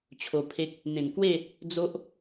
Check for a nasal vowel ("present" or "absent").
present